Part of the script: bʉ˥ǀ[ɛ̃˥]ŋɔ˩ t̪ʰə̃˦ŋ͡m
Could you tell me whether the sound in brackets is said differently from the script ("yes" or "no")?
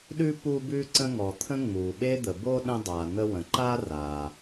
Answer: yes